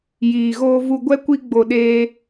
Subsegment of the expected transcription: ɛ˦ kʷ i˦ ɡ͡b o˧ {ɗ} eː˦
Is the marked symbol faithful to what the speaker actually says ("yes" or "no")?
yes